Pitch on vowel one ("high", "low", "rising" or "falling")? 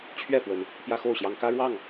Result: falling